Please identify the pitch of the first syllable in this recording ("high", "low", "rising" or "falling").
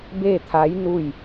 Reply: falling